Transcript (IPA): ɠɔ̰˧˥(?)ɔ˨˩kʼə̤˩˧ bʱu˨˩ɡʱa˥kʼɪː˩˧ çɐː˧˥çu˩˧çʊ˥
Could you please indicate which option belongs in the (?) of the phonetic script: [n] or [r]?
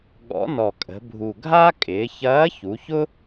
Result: n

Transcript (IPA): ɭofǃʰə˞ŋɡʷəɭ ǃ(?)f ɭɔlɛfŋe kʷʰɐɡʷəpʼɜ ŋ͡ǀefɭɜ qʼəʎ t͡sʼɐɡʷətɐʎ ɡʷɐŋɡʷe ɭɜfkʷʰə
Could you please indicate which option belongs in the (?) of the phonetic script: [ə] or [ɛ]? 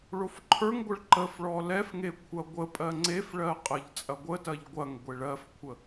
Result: ə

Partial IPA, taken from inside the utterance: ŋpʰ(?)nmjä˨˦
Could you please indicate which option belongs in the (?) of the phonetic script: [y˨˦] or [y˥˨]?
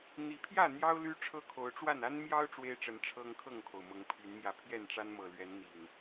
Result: y˨˦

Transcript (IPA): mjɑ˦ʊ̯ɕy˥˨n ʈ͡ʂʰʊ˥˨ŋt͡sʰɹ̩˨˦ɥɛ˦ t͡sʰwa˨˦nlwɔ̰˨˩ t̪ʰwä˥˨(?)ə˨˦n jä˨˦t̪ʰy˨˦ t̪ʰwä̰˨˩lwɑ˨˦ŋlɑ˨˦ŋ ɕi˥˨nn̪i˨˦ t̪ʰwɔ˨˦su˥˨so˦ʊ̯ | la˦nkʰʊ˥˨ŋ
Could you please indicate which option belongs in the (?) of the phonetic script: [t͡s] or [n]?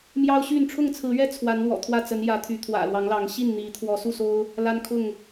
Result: t͡s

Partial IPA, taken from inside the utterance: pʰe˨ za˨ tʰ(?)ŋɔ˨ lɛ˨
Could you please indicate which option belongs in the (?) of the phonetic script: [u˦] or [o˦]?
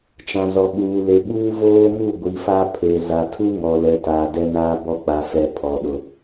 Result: u˦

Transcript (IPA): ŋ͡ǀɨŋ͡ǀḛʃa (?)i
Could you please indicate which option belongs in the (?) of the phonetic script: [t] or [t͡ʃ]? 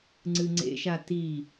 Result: t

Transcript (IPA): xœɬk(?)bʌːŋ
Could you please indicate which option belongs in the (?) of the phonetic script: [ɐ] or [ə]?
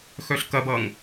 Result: ɐ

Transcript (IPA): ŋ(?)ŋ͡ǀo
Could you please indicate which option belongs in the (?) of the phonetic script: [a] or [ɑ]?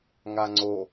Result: a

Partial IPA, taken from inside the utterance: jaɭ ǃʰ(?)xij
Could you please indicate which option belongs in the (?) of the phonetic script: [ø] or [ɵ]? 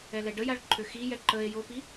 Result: ø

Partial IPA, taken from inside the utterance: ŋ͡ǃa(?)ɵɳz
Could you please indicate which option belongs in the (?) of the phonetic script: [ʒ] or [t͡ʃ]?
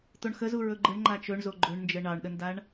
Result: t͡ʃ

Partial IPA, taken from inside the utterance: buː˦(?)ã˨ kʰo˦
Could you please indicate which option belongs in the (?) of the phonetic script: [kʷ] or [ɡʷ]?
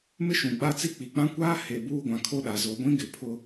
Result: ɡʷ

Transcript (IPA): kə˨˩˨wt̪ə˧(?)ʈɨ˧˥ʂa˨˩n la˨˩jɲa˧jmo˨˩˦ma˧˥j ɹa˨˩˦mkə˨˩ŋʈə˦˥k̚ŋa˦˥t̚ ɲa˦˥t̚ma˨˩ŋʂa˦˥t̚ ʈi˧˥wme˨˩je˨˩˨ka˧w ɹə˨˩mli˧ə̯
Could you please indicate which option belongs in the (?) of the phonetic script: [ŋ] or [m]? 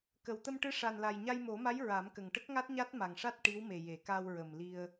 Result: m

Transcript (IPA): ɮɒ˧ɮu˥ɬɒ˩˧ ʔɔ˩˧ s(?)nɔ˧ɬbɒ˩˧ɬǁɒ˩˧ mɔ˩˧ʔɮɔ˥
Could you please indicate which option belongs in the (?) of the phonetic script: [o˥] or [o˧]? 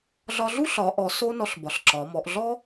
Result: o˥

